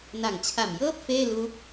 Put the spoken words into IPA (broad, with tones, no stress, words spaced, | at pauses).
na˨˩ŋt͡ɕʰa˨˩mjɤː˥˩p̚ feː˥˩ lu˦˥k̚